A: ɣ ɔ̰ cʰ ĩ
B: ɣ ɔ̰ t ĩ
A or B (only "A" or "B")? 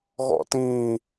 B